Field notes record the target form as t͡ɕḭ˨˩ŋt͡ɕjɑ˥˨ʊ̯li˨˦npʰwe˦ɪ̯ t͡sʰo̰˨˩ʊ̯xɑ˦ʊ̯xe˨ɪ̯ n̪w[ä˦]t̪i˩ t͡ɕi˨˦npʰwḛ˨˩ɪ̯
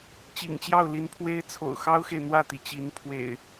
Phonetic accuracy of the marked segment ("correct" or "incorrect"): incorrect